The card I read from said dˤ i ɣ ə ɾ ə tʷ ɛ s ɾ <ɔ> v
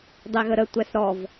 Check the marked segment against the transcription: correct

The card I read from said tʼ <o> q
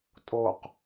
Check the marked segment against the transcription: correct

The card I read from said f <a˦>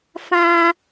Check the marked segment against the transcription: incorrect: ã˦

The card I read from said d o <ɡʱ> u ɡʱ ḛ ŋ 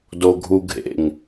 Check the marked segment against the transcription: correct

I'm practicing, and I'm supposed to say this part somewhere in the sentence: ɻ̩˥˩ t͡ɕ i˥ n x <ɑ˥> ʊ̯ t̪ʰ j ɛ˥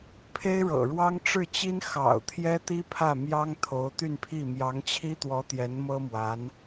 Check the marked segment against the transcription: incorrect: ɑ̰˨˩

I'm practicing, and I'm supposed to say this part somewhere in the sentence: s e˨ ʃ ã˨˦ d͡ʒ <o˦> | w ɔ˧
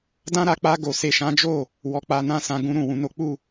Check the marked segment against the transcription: incorrect: o˦˨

